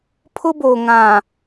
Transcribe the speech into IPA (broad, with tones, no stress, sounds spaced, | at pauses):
pʰ ʊ˦ b oː˨ ŋ ã˨